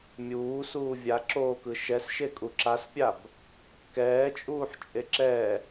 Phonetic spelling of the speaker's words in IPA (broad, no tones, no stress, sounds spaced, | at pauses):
mʲ uː s uː vʲ a ǁ oː k ɯ ʃ ɛ s ʃ e kʼ u ǁ a s pʲ a b | k ɛː t͡ʃʼ uː ħ t͡ʃʼ e ǁ ɛ